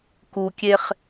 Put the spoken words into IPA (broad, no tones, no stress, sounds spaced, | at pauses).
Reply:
k u kʲ e χ